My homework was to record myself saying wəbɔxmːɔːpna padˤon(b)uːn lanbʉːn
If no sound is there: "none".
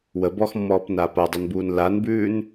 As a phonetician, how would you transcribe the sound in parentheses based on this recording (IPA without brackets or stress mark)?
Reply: b